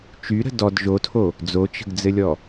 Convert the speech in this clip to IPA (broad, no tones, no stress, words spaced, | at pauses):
t͡ʃyɾə̤ dɔd ʒotʰo | d͡zot͡ʃə̤ɡd͡zɘlʲɔ